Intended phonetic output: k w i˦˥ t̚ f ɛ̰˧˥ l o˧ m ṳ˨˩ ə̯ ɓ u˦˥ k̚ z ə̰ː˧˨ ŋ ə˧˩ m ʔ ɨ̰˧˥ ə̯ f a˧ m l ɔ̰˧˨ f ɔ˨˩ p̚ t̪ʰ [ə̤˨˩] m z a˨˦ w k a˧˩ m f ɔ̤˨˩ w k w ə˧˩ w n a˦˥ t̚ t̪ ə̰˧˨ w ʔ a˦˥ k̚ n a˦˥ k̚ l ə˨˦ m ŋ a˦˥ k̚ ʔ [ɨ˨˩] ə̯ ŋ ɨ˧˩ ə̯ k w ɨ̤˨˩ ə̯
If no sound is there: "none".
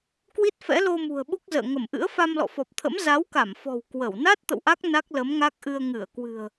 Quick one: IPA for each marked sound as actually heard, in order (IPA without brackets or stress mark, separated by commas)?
ə̰˧˥, ɨ˧